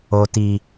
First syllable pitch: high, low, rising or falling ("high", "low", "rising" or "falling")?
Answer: low